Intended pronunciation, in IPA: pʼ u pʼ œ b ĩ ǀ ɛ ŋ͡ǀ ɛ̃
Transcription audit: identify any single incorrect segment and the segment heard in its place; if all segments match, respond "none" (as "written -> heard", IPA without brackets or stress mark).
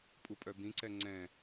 none